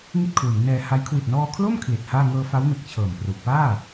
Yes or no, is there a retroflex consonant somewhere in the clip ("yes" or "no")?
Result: no